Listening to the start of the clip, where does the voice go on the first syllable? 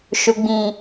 low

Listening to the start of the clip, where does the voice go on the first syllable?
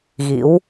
rising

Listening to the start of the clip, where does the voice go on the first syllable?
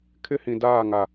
high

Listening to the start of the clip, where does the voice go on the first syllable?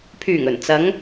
low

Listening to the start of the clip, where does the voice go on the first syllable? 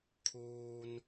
low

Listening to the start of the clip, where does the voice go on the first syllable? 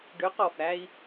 rising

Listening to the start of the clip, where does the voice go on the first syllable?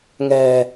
low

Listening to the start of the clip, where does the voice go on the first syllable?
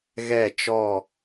falling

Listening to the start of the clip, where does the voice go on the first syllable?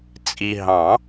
low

